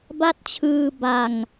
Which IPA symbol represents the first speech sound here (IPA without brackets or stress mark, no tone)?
b